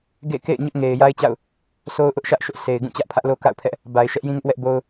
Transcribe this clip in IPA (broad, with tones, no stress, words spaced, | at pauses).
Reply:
ɡḛ˦˨ kḛ˦˨ɪ̯ɲʊ˦ʔŋe˨ɪ̯ ja˦ɪ̯t͡ɕa̰˦˨ʊ̯ | sʰo˦ʊ̯ʔʊ˦ʔ ʃä˦ʔʃʊ˦ʔ sʰe˨ɪ̯ ɡũ˦˨t͡ɕä˦ʔpʰä˦ʔlo˦ ka̰˦˨ʊ̯pʰɛ˦ʔ | ba˨ɪ̯ ʃɛ˦ʔjĩ˦ŋɪ˦ʔwɛ˦ʔ bo˦ʊ̯